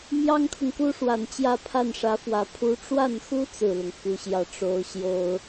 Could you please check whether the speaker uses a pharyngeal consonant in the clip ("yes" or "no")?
no